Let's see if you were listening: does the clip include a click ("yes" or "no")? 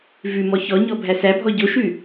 no